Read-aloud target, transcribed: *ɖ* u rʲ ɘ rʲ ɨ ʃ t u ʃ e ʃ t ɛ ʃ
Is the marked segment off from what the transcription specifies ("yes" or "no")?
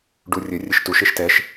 no